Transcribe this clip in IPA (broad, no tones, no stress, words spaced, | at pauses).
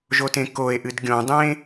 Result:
ʒotẽkoe̯ʔɨd ɡʲõdˤẽ